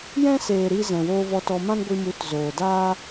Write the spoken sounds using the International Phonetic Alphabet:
j ɛ̃˦ s eː˨ ɾ iː˧ z ɛ̃˨ w oː˧ v ɔ˧ t ɔ˧ m ã˦ n ɡʷ i˧ m u˨˦ t z oː˨ d aː˦

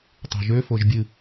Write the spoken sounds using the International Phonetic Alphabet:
tˤ ṳ ʒ ø f o ʒ bʲ ɨ

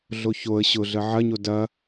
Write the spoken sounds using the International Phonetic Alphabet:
ɮ o ç o ə̯ ɕ ʊ ɮ ə ʕ ɐ ɲ o d ɐ

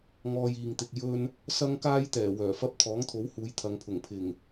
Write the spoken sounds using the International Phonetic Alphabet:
ŋ ɔː˧ j iː˨ ŋ t̪ ɪ˨ k̚ j ɵ˥ n | s ɐ˥ ŋ k aː˥ j t̪ ɛː˨˩ w œː˨˩ f ɐ˧ p̚ t̪ʰ ɔː˨˥ ŋ t̪ʰ o˨˥ w h uː˨˧ j t̪ʰ ɐ˨˧ ŋ pʰ ʊ˨˩ ŋ pʰ ɪ˨˩ ŋ

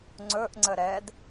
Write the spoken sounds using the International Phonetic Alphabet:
ŋ͡ǀ ɵ ʔ ŋ͡ǀ ə ɾ ɛ d

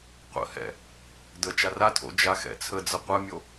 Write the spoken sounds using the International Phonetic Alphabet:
qʷ ə̰ h ɛ̰ | d ə t͡ʃ a r a tʰ o̰ d͡ʒ a x ɛ̰ t͡sʰ ə d͡z ə qʷ ə mʲ o

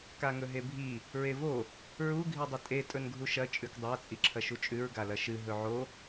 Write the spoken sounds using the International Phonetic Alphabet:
k a ŋ ɵ ɦ e bʱ i | ɹ e v o | ɹ u ɡʱ i dˤ ɐ tʼ e tʼ ɵ n ɡʱ u ʃ ɐ t͡ʃʼ ʉ k dˤ a t͡sʼ i ǁʰ ɐ ʃ u t͡ʃʼ ʉ ɹ ɡ a l ɐ ʃ ɨ ɦ ɵ ʕ o

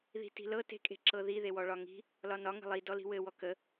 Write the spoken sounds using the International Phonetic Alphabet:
ð i̤ t i̤ l ɤ t e̤ kʼ e̤ ǁ ɤ ð i ð e w ɔ ɭ ɒ ŋ i̤ | l ɒ n ɒ ŋ ə̤ lˠ i d ɔ l i̤ w ɘ w ɔ k ə

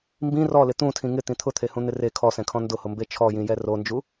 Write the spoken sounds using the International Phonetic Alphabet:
m b ĩ r ɔ l ɪ t̪ ũ tʰ ĩ ŋ ɪ t̪ ĩ t̪ʰ ʊ t̪ʰ e h ũ n̪ ɪ r e kʰ ɔ s ɛ̃ kʰ ɔ̃ n d ʊ h ʊ m b e t͡ʃʰ ɔ j ĩ j ɛ r o n d͡ʒ u

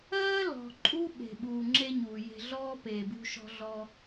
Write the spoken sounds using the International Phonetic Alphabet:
ɜː˥ l ɔ̤˩ ǃʼ u˥ ɓ e̤˩ ɓ uː˩ ŋ͡ǁ e˧ ɲ uː˩ j e̤˧ ɮ ɔː˥ p eː˩ b ṳ˧ ʃ ɔ̤˧ ɮ ɔ˧

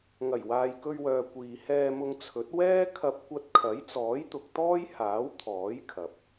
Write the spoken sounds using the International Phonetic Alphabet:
ŋ ɐ˨˩ j w aː˨ j k ɵ˧ ɥ w œː˨ kʷ iː˨ h ɛː˧ m ʊ˧ ŋ t͡sʰ ɵ˨˥ t̚ w ɛː˥ kʰ ɐ˧ p̚ kʷ ɐ˧ t̚ kʰ ɐ˨˥ j t͡s ɔː˨˥ j t̪ ʊ˨ k̚ t̪ ɔː˥ j h aː˨˥ w t̪ʰ ɔː˨˥ j kʰ ɐ˨ p̚

